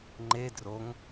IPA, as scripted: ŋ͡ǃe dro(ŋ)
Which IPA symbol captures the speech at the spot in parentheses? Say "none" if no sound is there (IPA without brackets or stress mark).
ŋ